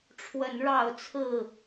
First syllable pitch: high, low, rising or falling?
rising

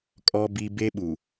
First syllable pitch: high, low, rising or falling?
low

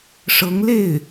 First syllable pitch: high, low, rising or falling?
rising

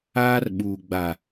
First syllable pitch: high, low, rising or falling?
high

